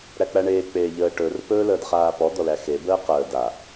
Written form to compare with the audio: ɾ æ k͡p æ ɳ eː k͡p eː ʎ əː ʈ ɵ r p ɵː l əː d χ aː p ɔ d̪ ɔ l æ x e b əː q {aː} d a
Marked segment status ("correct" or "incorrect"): incorrect